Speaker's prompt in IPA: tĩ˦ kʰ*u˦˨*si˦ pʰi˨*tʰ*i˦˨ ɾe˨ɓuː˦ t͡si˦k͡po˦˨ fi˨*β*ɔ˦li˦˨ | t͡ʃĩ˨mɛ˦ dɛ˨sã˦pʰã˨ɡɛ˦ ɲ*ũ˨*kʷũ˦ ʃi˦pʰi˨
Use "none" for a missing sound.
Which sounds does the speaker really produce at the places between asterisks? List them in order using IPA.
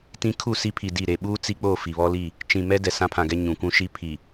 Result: u˦˨, d, β, ũ˨

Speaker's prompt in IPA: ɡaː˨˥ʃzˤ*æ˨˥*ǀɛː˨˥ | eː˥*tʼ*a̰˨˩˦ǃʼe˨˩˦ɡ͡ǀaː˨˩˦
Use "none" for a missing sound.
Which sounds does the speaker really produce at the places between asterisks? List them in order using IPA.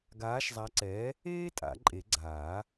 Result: a˨˥, tʼ

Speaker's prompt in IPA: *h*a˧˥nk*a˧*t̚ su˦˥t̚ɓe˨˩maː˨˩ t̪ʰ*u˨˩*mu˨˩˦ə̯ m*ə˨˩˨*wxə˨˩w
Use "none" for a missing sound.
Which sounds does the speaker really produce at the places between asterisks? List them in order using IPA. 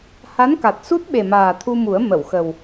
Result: h, a˨˩, u˧, ə˨˩˨

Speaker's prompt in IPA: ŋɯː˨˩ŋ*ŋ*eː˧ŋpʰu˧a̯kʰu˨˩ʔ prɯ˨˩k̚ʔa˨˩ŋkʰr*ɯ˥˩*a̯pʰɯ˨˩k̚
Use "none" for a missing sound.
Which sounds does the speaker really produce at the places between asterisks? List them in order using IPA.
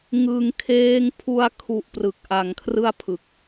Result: kʰ, ɯ˥˩

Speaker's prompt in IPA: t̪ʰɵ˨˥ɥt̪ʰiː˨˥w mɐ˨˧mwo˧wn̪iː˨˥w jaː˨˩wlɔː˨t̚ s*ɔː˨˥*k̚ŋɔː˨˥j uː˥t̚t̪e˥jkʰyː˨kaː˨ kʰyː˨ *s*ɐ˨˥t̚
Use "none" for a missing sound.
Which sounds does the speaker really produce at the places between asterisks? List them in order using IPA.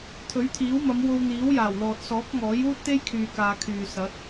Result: ɔː˨˥, s

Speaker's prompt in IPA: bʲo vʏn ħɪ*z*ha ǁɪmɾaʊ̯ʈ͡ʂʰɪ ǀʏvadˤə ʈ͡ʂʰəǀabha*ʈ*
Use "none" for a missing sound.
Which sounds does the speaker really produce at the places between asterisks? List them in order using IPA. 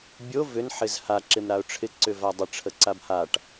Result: z, ʈ

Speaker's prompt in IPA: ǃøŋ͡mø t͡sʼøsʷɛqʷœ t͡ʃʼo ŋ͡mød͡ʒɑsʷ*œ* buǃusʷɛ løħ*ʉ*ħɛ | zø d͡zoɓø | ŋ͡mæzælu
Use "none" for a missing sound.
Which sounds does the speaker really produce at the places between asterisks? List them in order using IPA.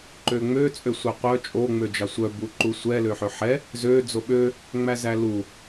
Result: œ, ø

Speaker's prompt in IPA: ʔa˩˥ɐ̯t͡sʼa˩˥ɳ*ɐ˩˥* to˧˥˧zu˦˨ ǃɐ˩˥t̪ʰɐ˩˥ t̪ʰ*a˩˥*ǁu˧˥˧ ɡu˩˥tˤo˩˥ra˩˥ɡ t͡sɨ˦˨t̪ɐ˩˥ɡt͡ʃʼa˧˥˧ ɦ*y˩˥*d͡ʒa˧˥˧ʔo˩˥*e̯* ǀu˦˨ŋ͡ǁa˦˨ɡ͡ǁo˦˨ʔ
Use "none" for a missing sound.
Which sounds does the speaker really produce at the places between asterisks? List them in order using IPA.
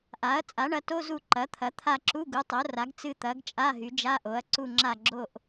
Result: ɐ˩˥, a˦˨, y˩˥, ɐ̯

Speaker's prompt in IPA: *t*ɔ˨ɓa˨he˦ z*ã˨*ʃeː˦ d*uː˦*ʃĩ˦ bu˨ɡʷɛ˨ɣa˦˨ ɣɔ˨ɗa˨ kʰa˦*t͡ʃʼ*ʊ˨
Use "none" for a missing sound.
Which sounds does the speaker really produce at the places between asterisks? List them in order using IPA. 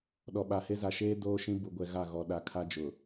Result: ɗ, a˨, oː˦, d͡ʒ

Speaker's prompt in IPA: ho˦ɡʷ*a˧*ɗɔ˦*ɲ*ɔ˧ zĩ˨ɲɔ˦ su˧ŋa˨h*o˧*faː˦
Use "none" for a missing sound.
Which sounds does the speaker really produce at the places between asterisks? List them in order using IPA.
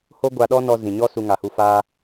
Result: a˧, n, u˧

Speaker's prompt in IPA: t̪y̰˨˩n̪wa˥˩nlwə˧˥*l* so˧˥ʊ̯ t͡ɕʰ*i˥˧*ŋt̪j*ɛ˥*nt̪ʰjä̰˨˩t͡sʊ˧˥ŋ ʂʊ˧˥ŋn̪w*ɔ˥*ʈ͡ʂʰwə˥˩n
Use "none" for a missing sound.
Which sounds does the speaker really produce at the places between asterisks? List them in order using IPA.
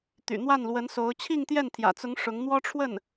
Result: n, i˥˧, ɛ˥˩, ɔ˥

